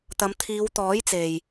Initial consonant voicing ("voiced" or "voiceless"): voiceless